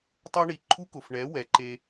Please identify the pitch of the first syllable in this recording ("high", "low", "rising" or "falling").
high